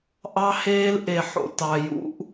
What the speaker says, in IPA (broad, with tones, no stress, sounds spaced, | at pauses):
ʔ ɑ˦ h eː˦ l ʔ e˨ ħ o̰˨ t ɑ˨ j ṵ˦ ʔ